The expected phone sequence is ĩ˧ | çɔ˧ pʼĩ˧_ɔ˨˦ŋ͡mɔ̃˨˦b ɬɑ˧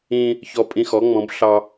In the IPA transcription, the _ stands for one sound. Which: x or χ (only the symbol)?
x